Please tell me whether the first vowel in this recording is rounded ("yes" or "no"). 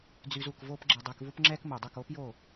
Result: yes